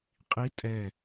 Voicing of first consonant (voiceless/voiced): voiceless